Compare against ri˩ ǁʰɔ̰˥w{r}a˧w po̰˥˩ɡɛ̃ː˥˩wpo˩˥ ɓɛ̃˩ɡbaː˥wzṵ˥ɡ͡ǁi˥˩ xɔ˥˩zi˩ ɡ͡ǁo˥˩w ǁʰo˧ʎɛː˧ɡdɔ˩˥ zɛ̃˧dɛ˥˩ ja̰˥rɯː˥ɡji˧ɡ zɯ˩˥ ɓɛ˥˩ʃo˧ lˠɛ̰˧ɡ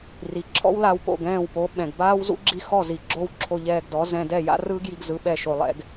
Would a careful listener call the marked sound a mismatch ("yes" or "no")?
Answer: yes